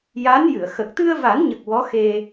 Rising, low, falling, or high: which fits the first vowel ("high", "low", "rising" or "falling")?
rising